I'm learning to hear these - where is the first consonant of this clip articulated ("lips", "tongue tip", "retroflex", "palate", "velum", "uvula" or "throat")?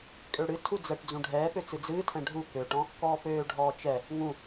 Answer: velum